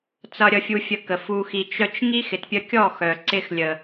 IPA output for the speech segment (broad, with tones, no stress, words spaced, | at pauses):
t͡sʌ˨ɾʲʌ˨fʲu˨ fʲə˧kə˨ fu˨xi˨t͡ʃœ˧t͡ʃ ŋi˦xɪ˨tpʲə˧ kʲɔ˦˨xœ˨ ǀɪ˧xlʲə˨